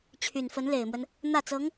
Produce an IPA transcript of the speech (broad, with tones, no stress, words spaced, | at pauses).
t͡ɕʰy˨˩nfə˧˥n le˨˩ɪ̯mwə˦n | n̪ä˥˩t͡sɤ˧˥ŋ